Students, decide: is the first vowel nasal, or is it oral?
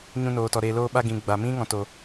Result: nasal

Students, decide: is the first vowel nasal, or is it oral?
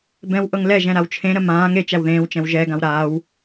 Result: nasal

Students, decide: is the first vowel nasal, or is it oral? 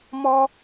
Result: oral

